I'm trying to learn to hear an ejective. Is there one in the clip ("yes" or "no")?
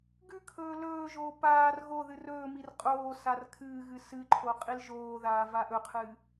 yes